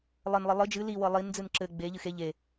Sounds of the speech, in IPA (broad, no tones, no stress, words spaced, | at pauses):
lˠɘnlˠɘ lˠɨ d͡ʒɨ li wɤlˠind͡zɨn ǁɘ ɡ͡beʎɨ xe ʎe